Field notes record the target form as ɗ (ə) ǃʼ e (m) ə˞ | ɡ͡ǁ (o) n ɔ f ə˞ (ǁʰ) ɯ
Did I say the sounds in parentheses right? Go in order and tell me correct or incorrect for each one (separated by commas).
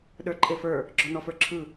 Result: incorrect, incorrect, incorrect, correct